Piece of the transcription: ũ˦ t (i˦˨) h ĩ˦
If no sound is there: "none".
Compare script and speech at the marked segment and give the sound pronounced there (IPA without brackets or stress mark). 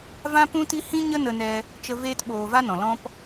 i˦